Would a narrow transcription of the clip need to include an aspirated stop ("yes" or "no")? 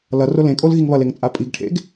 yes